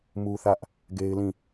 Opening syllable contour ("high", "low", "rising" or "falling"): high